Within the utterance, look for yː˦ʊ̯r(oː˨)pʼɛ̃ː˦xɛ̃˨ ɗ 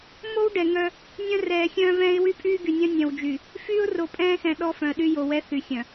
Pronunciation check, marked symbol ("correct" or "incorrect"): incorrect